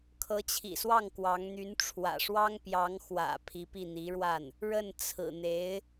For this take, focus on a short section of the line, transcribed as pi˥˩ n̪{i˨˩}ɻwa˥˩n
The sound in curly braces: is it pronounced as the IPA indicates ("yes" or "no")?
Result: no